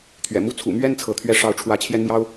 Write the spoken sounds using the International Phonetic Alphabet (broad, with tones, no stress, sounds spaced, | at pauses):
t̪ʰ ɥ ɛ̰˨˩ m u˥ t͡sʰ ṵ˨˩ m ɥ ɛ˥˩ n t͡sʰ ɤ˧˥ t̪ʰ ɥ ɛ˥ ʂ ɑ˥˩ ʊ̯ ʈ͡ʂʰ w ä˥ t͡ɕʰ j ɛ˥ n m j ɑ˥ ʊ̯